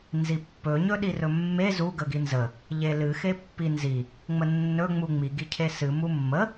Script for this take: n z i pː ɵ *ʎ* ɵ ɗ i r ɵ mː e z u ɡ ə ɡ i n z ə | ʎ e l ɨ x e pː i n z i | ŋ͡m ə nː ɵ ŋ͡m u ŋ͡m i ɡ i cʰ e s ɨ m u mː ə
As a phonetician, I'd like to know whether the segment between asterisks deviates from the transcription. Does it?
yes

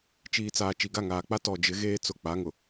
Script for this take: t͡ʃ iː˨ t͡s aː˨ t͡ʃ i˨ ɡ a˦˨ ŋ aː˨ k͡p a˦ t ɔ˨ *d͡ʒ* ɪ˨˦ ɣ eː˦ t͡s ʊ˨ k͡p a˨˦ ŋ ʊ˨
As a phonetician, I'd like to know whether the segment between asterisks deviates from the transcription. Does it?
no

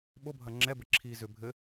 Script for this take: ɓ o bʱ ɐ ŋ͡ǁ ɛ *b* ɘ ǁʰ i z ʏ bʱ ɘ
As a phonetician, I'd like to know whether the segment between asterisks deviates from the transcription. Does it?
no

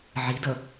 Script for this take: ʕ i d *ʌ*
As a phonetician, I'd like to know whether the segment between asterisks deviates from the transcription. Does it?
no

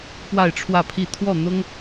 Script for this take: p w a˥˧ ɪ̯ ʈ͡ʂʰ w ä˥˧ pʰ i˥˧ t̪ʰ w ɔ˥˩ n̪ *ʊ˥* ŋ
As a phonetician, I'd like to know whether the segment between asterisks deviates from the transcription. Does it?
no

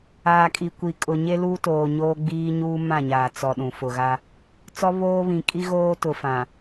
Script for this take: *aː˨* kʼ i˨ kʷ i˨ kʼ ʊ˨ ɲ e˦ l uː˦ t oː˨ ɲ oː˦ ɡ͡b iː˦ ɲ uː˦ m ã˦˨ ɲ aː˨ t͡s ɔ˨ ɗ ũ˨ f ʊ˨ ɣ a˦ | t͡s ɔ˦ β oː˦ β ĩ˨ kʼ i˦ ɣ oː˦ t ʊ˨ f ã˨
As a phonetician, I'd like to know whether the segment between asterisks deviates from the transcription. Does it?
no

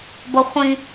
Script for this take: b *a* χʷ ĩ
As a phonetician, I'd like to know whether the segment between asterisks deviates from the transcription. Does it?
yes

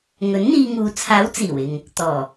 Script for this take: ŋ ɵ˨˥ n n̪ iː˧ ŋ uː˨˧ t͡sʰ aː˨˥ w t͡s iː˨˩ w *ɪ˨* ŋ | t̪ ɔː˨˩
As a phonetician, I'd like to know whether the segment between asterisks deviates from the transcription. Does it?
no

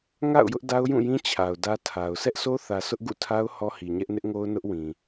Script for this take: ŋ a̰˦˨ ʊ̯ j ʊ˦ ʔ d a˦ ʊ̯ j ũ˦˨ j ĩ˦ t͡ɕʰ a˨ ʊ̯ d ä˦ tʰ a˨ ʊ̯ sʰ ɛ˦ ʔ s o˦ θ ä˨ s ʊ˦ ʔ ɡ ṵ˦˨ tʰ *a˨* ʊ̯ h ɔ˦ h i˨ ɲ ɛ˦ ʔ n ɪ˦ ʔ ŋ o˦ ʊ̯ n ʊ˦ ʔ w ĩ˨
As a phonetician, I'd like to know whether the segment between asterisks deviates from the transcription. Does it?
yes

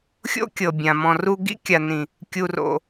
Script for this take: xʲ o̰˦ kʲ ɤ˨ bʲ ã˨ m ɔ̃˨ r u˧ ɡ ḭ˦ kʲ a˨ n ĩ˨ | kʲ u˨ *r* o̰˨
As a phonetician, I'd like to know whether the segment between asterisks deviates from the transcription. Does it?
no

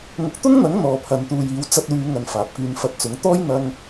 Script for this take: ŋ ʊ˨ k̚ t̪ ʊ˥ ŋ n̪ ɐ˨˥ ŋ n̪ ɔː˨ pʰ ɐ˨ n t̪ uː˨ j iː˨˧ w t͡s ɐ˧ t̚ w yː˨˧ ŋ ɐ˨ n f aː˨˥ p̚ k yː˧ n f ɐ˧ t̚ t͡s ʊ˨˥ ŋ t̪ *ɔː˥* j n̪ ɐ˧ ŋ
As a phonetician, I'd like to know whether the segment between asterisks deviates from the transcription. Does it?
no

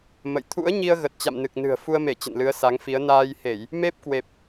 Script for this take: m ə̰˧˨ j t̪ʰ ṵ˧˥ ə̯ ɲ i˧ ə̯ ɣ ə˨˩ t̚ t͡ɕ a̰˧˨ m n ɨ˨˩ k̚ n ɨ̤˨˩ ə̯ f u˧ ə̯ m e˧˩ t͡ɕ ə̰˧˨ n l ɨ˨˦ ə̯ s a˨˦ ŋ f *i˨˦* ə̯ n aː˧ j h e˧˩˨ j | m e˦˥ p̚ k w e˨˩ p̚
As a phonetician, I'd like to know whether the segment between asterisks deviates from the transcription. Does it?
no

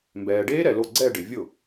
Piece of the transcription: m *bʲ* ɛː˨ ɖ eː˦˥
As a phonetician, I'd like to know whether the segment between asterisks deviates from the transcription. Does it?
yes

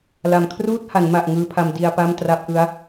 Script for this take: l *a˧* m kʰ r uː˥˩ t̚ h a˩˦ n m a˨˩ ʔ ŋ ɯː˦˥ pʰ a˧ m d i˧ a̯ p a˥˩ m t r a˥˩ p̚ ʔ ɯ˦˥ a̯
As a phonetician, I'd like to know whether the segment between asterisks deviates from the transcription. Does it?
yes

